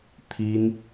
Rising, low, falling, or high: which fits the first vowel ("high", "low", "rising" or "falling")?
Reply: high